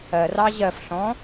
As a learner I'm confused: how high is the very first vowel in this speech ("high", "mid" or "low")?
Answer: mid